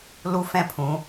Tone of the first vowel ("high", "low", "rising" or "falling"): high